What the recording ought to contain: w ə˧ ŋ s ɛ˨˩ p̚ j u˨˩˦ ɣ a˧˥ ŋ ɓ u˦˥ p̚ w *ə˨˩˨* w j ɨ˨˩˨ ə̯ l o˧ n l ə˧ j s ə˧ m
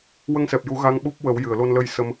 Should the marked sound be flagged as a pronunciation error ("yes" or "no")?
yes